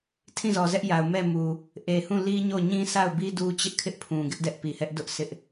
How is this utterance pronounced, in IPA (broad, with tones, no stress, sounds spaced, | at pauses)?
tʰ ĩ˦˨ z ɔ˨ z ɛ˦ ʔ j a˨ ʊ̯ m ɛ˦˨ m u˨ | ʔ e˨ h ũ˦˨ l i˦ ɲ o˦˨ ɲ ĩ˦ s a˦˨ ʊ̯ b i˦ d u˦ t͡ɕ ɪ˦ ʔ kʰ ɪ˦ ʔ pʰ ũ˨ ɡ ɪ˦ ʔ d ɛ˦ ʔ p i˨ h ɛ˦ ʔ d ʊ˦ ʔ s ɪ˦ ʔ